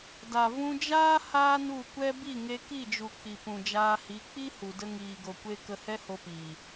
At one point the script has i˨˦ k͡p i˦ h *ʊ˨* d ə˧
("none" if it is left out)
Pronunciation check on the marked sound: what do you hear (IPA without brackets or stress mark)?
u˨